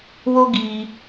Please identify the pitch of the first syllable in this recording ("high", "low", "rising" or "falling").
high